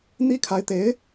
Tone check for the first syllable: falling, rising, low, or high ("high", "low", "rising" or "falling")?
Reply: high